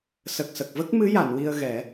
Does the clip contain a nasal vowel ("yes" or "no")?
no